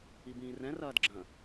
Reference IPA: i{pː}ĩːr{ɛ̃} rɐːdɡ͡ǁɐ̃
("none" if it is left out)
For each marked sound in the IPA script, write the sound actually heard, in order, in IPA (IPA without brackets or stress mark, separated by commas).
b, ɛ̃